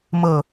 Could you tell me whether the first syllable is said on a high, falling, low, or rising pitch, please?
low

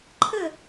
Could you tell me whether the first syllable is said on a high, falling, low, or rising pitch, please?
falling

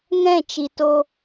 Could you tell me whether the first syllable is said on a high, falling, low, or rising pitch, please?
falling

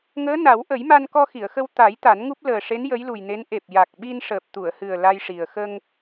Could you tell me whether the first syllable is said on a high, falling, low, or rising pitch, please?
rising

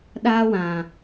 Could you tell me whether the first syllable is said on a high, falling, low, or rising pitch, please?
high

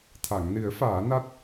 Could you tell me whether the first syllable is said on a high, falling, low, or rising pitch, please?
low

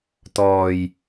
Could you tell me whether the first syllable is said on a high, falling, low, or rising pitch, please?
low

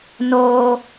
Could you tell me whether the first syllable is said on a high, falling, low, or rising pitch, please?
high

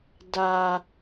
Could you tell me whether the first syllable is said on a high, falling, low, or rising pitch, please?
high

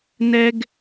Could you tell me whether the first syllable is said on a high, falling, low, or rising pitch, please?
high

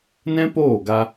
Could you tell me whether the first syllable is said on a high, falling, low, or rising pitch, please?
high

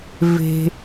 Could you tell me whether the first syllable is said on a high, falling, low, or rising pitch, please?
high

